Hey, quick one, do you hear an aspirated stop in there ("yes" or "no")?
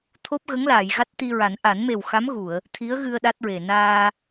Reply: yes